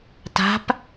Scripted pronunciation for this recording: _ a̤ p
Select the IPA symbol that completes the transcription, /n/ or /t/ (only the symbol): t